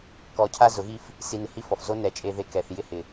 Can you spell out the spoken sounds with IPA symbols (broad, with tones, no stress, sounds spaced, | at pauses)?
k ɔ˧ cʰ a˦ z ʊ˨˦ ɣ i˦ f | s i˧ n ɪ˨ h i˦ f ɔ˨ f z o˦ n ɛ˨˦ t͡ʃʼ e˧ ð e˧ k ɛ˨ θ j ɪ˦ h ɪ˨